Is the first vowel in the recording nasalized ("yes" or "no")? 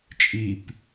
no